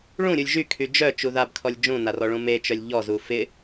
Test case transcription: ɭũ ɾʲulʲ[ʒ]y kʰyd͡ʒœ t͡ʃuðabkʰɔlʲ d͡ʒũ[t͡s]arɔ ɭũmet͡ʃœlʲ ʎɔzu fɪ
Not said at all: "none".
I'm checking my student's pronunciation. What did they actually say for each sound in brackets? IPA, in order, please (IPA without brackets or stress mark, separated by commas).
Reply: ʒ, n